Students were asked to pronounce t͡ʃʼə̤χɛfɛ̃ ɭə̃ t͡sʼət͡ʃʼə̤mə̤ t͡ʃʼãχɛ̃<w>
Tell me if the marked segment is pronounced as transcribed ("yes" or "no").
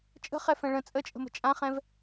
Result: no